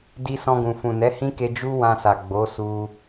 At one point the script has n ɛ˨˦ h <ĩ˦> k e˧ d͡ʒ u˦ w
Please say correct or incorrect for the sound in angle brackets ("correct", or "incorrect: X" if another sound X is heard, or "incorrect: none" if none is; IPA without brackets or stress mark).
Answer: correct